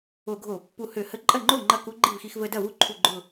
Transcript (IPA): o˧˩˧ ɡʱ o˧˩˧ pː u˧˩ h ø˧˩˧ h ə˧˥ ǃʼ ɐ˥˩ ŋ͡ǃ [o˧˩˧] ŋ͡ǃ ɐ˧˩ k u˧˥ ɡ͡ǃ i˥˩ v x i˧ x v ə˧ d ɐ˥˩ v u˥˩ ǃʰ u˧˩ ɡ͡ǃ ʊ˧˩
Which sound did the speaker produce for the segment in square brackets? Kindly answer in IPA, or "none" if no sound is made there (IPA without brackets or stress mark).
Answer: o˥˩